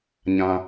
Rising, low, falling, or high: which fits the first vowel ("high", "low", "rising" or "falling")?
high